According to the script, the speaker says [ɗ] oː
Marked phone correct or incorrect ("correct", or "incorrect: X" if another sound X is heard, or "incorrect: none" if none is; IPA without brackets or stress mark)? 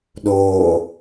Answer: correct